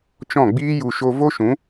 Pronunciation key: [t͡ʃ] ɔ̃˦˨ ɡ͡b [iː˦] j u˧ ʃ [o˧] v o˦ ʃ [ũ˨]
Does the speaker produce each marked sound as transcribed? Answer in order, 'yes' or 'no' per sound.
yes, yes, yes, no

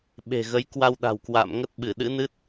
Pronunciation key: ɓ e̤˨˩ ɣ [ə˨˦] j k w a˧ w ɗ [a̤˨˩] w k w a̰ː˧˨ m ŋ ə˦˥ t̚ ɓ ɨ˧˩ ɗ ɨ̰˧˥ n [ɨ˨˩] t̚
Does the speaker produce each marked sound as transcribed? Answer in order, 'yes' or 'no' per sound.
yes, yes, no

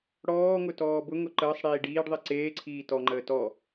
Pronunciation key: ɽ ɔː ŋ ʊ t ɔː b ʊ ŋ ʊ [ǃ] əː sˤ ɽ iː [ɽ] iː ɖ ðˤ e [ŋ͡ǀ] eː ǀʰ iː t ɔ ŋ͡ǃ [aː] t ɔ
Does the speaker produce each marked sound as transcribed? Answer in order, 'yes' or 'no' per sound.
yes, no, no, no

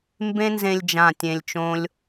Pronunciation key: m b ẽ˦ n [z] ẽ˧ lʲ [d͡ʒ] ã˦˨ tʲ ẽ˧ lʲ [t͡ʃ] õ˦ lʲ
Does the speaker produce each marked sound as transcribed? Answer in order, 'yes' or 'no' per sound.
yes, yes, yes

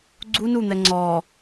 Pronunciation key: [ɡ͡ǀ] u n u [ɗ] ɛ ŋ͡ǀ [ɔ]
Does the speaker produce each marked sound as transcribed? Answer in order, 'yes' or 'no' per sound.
yes, no, yes

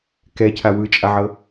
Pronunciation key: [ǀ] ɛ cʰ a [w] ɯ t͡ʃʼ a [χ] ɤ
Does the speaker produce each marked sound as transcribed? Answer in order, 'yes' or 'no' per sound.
no, yes, no

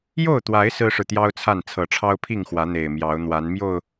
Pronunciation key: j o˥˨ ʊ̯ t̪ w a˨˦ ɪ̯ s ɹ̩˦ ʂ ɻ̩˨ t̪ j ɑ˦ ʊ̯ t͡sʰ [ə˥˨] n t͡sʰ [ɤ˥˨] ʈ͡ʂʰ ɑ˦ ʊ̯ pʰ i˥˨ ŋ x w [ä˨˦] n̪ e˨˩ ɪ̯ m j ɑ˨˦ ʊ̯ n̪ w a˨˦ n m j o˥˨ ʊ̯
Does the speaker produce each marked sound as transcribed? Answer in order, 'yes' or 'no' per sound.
no, no, yes

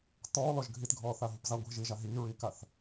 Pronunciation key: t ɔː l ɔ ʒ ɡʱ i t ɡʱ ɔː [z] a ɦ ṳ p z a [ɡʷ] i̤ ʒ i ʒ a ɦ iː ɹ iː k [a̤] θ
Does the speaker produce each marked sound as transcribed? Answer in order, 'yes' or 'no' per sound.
no, yes, no

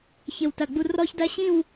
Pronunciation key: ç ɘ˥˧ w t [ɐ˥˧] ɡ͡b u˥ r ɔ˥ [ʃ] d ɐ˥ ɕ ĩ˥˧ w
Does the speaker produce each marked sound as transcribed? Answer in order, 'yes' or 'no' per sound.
yes, no

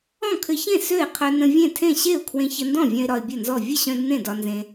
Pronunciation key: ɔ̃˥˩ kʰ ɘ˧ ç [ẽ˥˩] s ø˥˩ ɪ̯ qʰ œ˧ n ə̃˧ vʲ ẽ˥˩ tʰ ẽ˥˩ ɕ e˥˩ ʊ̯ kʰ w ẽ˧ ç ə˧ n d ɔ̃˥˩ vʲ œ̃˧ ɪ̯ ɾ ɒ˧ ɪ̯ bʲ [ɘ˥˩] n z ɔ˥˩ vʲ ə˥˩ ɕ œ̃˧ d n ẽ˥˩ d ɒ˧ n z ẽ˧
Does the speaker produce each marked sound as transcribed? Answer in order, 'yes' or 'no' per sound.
yes, yes

